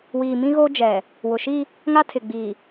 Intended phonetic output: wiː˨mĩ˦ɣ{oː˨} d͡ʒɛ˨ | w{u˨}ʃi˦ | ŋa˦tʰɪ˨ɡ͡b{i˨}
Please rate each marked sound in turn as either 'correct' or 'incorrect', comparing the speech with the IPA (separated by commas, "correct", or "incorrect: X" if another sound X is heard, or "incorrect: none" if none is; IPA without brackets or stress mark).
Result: incorrect: oː˦, incorrect: ʊ˨, correct